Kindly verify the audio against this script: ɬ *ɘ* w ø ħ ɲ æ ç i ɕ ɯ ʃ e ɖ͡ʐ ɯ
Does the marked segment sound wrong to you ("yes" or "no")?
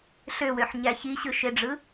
yes